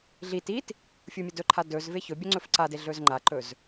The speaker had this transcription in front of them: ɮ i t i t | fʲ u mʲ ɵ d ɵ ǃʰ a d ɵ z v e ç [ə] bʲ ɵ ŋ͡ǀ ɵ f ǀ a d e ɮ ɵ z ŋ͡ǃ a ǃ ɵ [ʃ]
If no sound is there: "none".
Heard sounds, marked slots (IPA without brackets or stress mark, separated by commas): ɵ, z